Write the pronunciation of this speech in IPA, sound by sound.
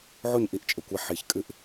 ʕ o˥˩ ɲ ʔ i˥˩ ʔ t͡ʃʼ ɘ˧˩˧ kʷ a˥˩ ħ i˧˩˧ ç kʼ ɨ˥˩ ʔ

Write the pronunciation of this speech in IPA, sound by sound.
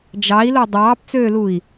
d͡ʒ ɑ i̯ l o dˤ ɑː p t͡s øː l u i̯

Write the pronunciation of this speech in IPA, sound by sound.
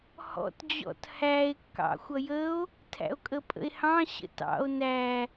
h ɔ̰ t d͡ʑ ɔ̰ t h æ e̯ kː ɑ̰ xʷ ʌ j ə o̯ | tʰ æ̰ o̯ kʼ ə pʼ ə̰ e̯ h ɑ̃ ɕ ə̰ t ɑ̰ o̯ n æ

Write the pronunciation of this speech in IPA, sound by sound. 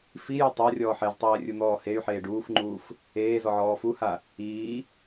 f i j e tˤ a rʲ ɔː ħ ɛ z tˤ ɛː rʲ u n̪ ɔː h e y̯ ħ eː ɖ uː f ŋ͡ǃ uː f | eː z ɔ ʕ ɔː f u h a | iː

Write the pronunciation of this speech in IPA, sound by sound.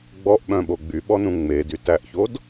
ɡ͡b ɔ ʔ ɓ œ̃ ɓ o ɡ͡b y ɓ ɔ n ũ ŋ͡m e d y t æ ʔ ç o d

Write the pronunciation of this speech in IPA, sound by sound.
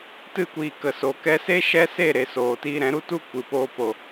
t ɨ˦˨ kʷ iː˨ k ə˨ s o˨ k ɛ˧ s e˦ ʃ ɛ˦ s e˦˨ ɾ e˨ s oː˨ t iː˧ ɾ ɛ̃˨˦ ɾ u˦ t u˦ kʷ ɨ˨ p oː˧ p o˨

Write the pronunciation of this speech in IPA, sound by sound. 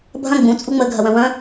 bʱ ɐ̃ ɡ͡b ũ t͡sʼ u ŋ͡m ə ɡʱ ɐ w ɐ̃ w ɐ̃

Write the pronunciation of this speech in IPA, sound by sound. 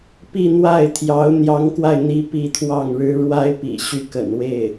p i˥˧ n̪ w a˥˩ ɪ̯ t̪ʰ j ɑ˧˥ ʊ̯ n̪ j ɑ˧˥ ŋ k w a˧ ɪ̯ n̪ i˧˥ p i˥˧ t̪ʰ w ɑ˥˩ ŋ ɻ ɻ̩˥ ɻ w a˥ ɪ̯ p ḭ˨˩ ɕ y˥˩ k ə̰˨˩ n w e˥˩ ɪ̯

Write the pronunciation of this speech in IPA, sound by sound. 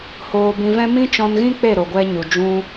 h oː˧ b ĩ˧ v ɛ̃˦ m ĩ˦ t͡ʃ ɔ̃˧ n ɣ ĩ˦ k͡p e˦˨ ɾ o˨ ɡʷ ɛ˧ ɲ u˨ d͡ʒ ũ˧

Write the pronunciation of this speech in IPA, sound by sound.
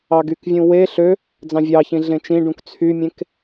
ɑ ɡ y k vʲ ũ w e ɬ ø | d͡z ɑ̃ vʲ ɑ ç ĩ ɮ ẽ t͡ʃ ĩ ɖ ũ k t͡sʰ y mʲ ẽ k

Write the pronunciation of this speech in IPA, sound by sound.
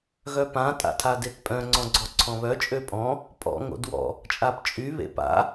ɣ œ p ã tʼ a̰ tʰ a d e t pʼ œ̃ ŋ͡ǀ ɔ̃ ɡ͡ǀ ɔ ǀʰ ɔ̃ β œ t͡ʃʼ ø pʼ ɔ̃ | pʼ ɔ̰ ŋ o̰ d w ɔ̰ | t͡ʃʼ a p t͡ʃʼ y β ḛ p a̰

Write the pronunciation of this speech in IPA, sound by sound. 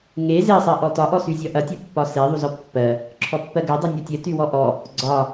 ŋ e z e sˤ ɜ ʔ ɔ t ɒ ʔ ɔ s y zʲ ɒ ʔ ɐ tʲ ɔ pː ɒ s e ðˤ u z ɔ pː ɜ | ǁʰ ɔ pː ɜ ɡ ɜ dˤ u nʲ ɒ tʲ ɜ t y w ɔ ʔ ɔ | ɡ͡ǀ ɒ

